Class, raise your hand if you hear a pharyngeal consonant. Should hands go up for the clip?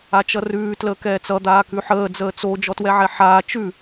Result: yes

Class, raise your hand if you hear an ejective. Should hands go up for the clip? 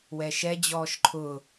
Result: no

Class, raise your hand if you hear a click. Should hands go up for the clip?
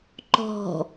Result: yes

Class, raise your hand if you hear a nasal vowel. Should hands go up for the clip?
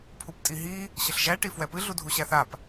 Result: no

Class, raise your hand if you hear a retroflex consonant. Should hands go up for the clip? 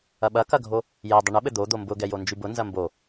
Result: yes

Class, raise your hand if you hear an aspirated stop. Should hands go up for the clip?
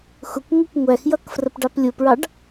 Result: no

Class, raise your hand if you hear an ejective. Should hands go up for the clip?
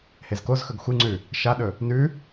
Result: no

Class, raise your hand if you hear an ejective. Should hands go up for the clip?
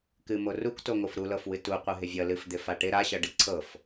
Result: no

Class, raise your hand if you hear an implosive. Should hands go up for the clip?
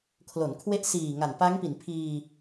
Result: no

